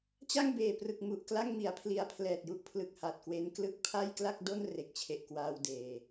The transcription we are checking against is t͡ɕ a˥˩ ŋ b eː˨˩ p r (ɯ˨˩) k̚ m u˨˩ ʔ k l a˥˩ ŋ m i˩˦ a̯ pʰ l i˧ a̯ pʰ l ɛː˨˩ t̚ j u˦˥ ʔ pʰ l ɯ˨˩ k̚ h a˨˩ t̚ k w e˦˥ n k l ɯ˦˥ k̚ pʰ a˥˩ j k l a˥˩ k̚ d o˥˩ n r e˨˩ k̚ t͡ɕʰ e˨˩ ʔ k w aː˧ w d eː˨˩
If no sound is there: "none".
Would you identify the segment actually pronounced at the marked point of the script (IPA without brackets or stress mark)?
ɯ˨˩